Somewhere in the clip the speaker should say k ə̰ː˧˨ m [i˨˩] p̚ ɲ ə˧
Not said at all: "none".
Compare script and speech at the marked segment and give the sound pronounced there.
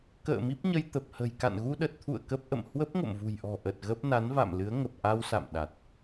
i˦˥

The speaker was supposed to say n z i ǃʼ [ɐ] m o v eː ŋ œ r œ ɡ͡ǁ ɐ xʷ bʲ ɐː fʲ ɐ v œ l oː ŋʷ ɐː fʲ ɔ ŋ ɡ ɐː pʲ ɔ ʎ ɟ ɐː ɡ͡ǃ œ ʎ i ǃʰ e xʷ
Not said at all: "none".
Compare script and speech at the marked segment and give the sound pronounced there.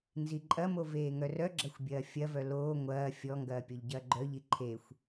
ɐ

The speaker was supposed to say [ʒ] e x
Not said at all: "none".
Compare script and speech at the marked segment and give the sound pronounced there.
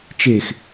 t͡ʃ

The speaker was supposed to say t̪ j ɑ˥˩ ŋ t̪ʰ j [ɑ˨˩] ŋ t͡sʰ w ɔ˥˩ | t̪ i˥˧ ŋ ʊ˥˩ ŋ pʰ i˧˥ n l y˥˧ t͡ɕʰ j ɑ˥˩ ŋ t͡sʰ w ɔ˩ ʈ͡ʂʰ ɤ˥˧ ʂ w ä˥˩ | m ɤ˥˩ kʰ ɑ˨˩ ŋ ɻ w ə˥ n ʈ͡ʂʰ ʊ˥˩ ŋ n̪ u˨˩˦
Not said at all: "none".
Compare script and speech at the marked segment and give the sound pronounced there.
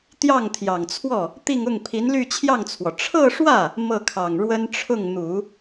ɑ˨˩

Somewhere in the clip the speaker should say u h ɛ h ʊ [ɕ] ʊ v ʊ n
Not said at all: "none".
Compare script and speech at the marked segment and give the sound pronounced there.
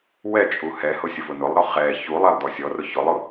sʲ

